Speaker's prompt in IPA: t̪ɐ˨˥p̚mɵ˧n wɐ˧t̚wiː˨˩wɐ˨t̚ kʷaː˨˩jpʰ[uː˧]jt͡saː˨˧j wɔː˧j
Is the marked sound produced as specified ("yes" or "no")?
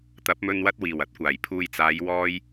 no